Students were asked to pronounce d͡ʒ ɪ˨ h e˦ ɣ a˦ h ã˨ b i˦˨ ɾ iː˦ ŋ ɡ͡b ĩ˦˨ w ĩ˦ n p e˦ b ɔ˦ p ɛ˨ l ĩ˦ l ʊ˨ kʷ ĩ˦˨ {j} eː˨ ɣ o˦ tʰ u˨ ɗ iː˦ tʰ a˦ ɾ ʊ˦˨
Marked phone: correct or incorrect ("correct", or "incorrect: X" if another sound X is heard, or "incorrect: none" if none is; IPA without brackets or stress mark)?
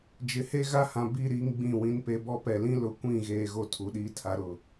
incorrect: ɣ